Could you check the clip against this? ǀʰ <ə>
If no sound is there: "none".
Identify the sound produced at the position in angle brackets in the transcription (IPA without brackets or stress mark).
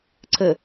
ə